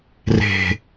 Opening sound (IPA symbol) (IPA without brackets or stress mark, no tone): r